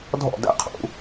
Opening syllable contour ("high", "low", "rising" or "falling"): falling